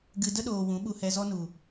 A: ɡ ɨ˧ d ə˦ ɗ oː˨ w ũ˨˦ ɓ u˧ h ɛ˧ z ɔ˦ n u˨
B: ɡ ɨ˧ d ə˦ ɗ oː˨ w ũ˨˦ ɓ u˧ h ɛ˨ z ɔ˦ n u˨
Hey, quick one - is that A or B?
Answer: A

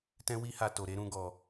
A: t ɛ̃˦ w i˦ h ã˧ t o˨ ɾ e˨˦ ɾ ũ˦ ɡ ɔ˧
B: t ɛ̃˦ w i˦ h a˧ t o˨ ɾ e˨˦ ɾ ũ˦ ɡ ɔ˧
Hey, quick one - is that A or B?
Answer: B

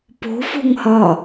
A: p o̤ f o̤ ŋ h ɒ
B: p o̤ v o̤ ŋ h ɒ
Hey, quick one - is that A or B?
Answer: A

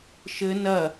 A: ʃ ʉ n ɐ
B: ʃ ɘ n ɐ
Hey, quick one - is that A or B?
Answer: B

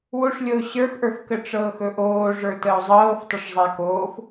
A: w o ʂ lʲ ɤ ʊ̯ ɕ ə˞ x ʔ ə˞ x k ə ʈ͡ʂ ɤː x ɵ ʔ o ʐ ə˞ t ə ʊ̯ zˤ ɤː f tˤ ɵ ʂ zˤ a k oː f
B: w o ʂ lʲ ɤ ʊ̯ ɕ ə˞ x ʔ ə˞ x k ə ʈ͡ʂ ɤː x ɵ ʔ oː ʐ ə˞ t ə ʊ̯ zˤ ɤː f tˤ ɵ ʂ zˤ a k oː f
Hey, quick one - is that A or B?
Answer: B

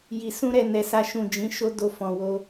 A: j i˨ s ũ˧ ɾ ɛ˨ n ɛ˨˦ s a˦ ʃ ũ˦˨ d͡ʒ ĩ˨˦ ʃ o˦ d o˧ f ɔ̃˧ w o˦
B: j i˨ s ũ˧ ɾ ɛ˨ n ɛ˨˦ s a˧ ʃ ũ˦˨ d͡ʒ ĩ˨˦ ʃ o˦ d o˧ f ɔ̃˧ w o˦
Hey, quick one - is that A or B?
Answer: A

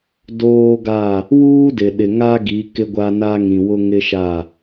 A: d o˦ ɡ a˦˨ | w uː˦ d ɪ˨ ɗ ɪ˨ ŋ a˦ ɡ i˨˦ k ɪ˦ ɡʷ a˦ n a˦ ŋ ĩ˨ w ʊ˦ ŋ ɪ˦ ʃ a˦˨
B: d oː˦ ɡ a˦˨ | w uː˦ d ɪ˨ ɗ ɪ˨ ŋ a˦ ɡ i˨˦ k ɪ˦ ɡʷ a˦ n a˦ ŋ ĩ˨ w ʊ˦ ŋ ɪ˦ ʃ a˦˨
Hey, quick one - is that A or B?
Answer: B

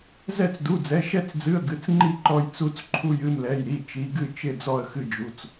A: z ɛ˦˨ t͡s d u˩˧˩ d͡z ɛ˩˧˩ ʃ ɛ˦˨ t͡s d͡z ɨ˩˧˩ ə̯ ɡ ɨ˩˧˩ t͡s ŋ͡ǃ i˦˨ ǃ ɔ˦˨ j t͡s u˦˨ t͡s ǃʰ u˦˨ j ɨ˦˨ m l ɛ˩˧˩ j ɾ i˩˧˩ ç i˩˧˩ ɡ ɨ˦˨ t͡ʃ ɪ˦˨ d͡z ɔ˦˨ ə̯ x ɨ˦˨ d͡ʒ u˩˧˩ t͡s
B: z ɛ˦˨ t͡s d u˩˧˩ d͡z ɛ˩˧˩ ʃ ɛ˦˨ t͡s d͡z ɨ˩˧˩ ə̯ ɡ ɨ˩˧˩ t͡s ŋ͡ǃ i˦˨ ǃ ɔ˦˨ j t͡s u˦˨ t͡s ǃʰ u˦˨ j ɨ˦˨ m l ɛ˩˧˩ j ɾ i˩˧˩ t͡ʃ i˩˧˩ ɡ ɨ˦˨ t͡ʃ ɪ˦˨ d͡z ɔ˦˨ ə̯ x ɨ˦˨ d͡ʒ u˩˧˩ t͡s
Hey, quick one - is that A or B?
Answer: B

